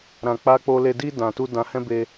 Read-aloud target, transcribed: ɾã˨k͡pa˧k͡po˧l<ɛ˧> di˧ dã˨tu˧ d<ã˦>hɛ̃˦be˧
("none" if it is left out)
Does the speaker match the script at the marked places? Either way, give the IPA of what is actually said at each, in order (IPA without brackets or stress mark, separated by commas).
e˧, ã˧